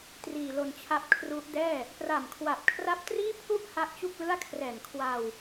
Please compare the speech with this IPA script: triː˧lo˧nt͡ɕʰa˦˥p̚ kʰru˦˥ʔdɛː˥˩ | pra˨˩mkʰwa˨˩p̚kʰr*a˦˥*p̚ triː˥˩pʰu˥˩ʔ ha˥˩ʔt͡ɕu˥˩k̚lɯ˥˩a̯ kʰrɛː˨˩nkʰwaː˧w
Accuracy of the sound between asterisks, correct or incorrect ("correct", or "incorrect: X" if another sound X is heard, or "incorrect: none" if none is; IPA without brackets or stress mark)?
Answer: correct